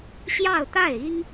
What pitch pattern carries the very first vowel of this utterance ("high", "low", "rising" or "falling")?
falling